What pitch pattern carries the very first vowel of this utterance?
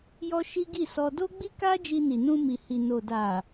high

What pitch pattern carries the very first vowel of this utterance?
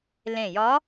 low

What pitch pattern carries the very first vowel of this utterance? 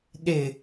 low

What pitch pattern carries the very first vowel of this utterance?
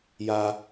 high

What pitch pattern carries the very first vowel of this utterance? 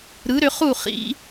rising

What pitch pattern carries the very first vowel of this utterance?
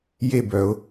falling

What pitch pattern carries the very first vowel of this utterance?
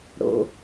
low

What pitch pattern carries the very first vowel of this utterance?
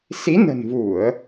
rising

